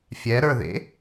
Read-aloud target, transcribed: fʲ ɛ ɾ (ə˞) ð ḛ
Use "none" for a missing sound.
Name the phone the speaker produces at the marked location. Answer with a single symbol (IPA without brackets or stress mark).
ə˞